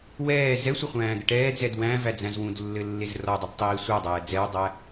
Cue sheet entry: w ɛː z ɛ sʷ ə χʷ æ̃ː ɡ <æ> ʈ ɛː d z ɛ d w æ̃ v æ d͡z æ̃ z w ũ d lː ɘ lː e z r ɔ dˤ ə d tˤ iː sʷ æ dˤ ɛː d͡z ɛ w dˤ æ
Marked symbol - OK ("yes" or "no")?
no